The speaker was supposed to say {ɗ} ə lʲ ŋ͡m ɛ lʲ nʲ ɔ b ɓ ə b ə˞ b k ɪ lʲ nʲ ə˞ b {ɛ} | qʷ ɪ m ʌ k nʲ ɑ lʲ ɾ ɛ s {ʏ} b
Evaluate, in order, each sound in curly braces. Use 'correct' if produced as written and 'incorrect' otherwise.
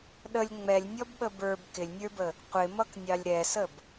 correct, incorrect: ə, incorrect: ə

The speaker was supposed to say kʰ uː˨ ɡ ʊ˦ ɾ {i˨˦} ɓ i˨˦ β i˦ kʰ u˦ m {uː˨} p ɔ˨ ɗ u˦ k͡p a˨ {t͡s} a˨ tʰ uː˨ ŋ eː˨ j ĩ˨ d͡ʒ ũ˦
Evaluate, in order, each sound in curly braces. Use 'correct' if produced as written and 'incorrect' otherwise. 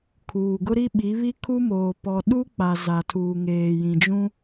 incorrect: i˦, incorrect: oː˨, incorrect: z

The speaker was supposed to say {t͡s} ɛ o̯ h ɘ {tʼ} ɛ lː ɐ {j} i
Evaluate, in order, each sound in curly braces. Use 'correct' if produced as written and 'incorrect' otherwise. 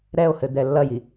incorrect: ɾ, incorrect: d̪, correct

